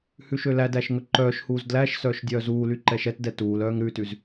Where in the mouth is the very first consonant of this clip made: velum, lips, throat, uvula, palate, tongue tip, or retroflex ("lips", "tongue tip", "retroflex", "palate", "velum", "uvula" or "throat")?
throat